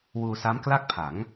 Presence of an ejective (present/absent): absent